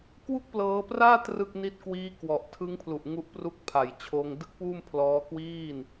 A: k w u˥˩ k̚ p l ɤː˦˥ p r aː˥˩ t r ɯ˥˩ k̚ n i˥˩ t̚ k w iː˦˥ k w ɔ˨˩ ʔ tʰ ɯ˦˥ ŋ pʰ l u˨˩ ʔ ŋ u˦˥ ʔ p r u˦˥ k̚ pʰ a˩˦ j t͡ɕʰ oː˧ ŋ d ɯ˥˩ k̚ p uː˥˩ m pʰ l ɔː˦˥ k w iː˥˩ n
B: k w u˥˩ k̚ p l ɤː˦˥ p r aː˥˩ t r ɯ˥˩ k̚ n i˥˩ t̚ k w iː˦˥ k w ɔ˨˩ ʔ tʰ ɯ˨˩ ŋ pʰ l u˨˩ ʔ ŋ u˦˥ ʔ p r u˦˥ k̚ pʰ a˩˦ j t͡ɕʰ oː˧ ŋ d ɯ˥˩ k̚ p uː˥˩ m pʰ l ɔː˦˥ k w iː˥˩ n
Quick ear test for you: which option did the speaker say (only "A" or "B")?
A